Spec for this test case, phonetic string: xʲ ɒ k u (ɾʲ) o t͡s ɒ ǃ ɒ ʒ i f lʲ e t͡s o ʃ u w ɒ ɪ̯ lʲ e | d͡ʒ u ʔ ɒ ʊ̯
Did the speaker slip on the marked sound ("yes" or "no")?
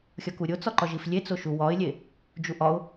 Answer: no